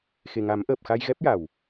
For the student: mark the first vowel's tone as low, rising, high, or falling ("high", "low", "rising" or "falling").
low